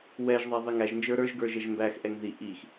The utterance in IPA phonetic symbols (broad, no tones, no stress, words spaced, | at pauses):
wɛʒðˤæ ðˤiŋæʒnd͡ʒə˞ ɾə˞ʒɡə˞ ʒɛʒmbæxʔɛŋ ði ʔix